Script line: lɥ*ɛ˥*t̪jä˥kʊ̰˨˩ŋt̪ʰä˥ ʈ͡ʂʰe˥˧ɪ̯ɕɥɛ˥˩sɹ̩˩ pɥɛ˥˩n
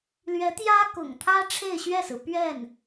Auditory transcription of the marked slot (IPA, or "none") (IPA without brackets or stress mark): ɛ˧˥